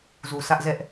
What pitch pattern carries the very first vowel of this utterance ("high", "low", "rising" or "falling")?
low